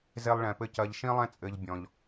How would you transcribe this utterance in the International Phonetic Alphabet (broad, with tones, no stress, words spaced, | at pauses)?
ze˦lˠɭɛ̃˧pɘ˦ cɐ˧ʎʃĩ˦lˠɛ̃˦t͡sʼɘ˧ʎ bʲɔ̃˦ʎ